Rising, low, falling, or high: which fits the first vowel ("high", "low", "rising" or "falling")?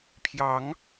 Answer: rising